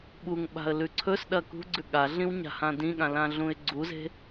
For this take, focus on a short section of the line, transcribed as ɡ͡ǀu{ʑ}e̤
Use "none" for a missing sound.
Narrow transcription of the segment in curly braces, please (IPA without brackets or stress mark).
z